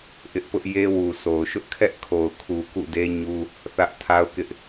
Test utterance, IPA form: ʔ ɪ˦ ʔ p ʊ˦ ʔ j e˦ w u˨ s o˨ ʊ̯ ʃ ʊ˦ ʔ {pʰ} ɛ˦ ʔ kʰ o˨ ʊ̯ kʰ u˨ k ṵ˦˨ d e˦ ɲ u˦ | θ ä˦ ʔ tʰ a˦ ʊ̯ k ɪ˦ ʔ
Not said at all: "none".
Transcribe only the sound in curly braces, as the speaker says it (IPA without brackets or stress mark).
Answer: kʰ